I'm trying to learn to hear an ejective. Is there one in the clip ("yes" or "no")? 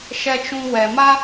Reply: no